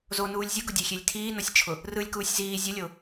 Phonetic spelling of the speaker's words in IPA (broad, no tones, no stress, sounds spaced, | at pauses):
z o n uː lʲ zʲ ʊ ɡ ʊ dʲ e xʲ e lʲ tʰ iː n ɔ sʲ t͡ʃʰ ʊ | r ɯ lʲ k uː sʲ z iː zʲ ʊ lʲ o